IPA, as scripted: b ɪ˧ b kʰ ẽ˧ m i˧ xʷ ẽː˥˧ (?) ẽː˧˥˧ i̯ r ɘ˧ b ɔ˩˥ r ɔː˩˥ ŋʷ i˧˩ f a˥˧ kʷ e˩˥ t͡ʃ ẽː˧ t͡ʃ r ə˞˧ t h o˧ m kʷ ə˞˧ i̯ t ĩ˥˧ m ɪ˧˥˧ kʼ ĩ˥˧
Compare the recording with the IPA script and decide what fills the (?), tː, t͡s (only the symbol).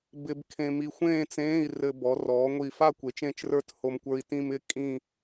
t͡s